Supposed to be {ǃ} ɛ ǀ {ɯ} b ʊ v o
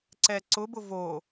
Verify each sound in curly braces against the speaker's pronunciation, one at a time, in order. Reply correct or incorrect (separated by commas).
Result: incorrect, incorrect